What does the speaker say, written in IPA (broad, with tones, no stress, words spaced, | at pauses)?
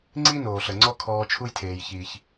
ŋ͡ǀi˥noː˩ɬə˩ ŋ͡ǀɔ˥kʰɔː˧ t͡ʃʰu˥jtʰeː˩jçiː˩ç